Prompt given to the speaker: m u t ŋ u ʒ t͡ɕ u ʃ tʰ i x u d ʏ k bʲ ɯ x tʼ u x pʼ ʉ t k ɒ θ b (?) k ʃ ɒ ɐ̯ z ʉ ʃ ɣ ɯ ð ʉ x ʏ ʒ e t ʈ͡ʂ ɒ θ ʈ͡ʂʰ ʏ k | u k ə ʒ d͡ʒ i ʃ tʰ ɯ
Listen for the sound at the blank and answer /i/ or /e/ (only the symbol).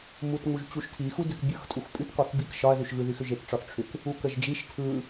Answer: i